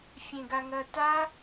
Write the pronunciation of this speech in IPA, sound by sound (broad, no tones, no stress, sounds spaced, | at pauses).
fʲ ẽ ɡ a ŋ ɐ t a